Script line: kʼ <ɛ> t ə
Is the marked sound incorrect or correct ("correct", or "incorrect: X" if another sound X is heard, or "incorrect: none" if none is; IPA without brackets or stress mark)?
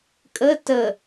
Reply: incorrect: ə